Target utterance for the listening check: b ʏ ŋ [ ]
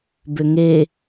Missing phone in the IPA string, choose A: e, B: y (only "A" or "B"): A